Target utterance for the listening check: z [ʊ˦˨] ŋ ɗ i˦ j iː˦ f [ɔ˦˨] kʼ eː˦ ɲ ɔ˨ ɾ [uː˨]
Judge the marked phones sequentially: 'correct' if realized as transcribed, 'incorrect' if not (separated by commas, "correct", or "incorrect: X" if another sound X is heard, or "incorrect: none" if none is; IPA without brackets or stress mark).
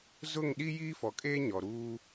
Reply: correct, incorrect: ɔ˨, incorrect: uː˦